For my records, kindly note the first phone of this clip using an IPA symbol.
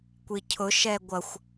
kʷ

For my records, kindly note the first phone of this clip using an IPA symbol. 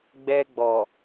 ɡ͡b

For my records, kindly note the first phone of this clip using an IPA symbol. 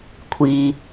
kʷʰ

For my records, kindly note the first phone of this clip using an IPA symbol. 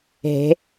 ɦ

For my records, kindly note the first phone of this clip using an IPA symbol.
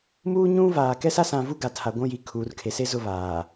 m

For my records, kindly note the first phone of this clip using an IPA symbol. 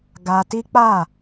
ɡ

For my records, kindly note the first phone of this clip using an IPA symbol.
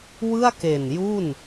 w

